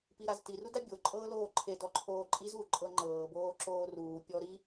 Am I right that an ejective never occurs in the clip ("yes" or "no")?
no